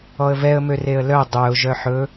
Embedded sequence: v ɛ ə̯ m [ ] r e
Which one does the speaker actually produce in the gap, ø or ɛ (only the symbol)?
ø